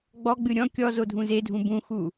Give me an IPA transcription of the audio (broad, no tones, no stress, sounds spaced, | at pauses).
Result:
ɡ͡b ɔ ɡ͡b ɨ ɾʲ ɔ̃ kʲ ɔ z o dʱ ũ z e dʱ ũ b ũ x u